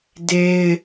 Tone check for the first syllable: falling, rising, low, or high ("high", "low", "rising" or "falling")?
high